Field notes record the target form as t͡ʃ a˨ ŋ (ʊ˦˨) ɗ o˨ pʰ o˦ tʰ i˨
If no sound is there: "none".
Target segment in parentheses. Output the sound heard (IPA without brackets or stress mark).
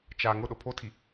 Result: ʊ˦˨